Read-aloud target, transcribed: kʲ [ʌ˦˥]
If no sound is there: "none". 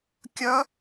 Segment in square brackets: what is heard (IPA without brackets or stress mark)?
ʌ˦˥